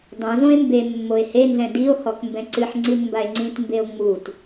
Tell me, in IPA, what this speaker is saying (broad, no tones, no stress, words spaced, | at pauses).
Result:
dˤõzõe̯ mbe mːoe̯henzɛ̃ dio̯hɔk mbɛ̃ǀɨħŋ͡ǀin mbae̯ŋ͡ǀĩtmbeo̯ ŋ͡mut